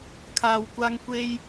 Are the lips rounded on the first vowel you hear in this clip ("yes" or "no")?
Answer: no